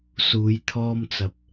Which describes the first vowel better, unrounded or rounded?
rounded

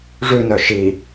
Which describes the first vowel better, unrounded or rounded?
rounded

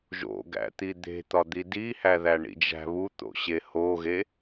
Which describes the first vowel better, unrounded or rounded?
rounded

